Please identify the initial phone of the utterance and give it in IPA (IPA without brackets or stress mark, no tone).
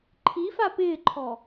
ǃʰ